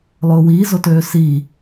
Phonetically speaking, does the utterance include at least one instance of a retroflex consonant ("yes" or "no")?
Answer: no